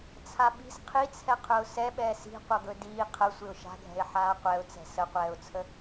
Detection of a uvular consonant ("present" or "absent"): present